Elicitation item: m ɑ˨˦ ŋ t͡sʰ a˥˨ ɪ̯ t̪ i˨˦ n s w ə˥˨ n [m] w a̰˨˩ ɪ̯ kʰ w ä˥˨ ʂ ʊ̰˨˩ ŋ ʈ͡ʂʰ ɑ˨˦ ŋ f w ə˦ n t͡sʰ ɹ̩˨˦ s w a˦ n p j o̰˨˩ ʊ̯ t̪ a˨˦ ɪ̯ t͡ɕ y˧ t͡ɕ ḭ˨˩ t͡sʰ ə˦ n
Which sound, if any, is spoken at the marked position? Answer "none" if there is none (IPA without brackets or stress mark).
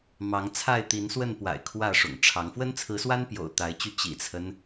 p